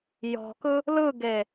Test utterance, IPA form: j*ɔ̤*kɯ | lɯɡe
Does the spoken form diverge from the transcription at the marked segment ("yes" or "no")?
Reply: no